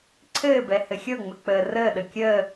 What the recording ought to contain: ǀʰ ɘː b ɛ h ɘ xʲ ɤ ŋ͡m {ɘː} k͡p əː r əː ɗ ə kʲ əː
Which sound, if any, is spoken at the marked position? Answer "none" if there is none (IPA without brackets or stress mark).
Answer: ɘ